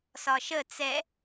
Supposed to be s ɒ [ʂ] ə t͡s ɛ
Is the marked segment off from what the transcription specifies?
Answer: yes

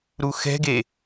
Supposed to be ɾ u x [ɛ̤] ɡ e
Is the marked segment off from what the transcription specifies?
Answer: no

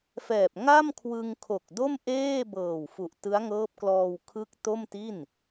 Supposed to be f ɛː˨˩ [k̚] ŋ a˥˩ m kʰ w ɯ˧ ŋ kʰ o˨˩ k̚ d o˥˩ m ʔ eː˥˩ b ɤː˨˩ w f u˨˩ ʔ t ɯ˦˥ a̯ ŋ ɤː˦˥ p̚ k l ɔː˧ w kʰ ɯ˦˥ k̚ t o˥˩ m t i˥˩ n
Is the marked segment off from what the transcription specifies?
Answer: yes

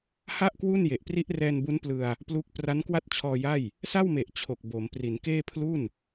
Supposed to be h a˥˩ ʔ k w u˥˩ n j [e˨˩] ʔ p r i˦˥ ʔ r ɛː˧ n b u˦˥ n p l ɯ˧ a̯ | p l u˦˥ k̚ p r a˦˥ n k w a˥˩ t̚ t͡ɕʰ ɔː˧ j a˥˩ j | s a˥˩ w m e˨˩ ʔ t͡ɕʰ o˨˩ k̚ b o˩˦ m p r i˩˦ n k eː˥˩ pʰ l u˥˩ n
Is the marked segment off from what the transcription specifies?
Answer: no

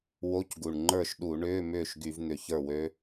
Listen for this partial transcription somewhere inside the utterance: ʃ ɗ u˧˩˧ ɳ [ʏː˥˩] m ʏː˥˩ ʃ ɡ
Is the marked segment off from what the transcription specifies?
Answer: yes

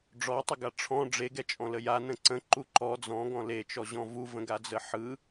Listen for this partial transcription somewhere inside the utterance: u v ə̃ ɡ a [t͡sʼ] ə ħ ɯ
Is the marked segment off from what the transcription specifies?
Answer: yes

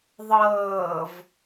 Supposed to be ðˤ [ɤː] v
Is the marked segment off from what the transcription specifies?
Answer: no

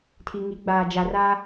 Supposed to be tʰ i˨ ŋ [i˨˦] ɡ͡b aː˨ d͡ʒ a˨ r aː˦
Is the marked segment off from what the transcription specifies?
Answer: no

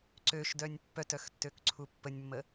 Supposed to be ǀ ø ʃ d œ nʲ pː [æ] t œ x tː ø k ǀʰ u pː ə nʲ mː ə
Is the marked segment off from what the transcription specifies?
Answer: yes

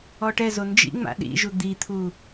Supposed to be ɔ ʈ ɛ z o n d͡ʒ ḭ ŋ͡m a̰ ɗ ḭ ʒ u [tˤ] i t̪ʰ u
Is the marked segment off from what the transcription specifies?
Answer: yes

